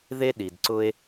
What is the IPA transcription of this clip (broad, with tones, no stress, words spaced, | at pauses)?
ðe˥ ɗi˩dǀʊ˥e̯